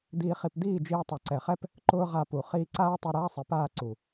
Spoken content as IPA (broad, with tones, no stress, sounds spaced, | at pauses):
d̪ iː˧ χ i˧ p d̪ iː˦˨ d͡ʒ iː˧ tˤ o˨ ǀ ɛ˨ χ ɛ˦ p | ǃ ʊː˦ ʁ a˧ p u˨ χ iː˧ ǀ aː˦ tˤ ɛ˧ ɾ aː˦ sˤ i˨ p aː˦˨ ǀ u˨